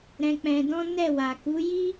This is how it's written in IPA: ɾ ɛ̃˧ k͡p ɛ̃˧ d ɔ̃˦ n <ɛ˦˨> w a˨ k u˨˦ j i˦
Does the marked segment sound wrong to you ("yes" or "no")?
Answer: no